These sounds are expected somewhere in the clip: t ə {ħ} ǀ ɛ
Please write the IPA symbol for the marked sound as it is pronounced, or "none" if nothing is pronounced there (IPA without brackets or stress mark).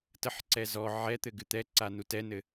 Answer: ħ